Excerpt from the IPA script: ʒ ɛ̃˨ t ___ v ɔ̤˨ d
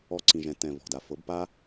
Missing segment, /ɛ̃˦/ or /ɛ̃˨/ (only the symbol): ɛ̃˨